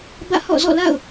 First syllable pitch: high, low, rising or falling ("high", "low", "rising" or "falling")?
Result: falling